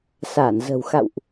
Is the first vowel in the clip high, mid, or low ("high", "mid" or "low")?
low